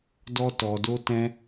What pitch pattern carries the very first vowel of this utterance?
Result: high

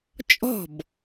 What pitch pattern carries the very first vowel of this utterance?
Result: falling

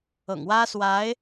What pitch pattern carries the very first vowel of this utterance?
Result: low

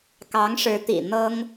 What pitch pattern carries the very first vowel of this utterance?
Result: rising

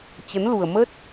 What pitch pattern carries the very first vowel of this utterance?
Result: rising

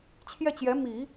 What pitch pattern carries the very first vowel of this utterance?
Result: falling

